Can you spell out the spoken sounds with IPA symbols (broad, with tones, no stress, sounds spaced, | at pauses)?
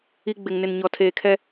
i˦ ɡ͡b ɪ˨ ŋ n ɪ˨ n ɲ ɔ˨ tʰ eː˨ kʰ ɛ˦